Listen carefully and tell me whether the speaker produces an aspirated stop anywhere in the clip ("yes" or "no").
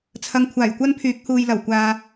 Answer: yes